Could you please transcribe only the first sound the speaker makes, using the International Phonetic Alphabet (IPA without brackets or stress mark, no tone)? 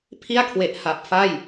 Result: pʰ